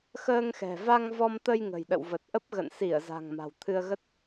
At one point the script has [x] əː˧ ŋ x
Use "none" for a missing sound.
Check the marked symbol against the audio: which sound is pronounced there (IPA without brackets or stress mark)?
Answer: x